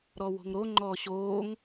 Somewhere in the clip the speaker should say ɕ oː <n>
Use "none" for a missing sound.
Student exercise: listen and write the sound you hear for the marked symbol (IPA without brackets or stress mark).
ŋ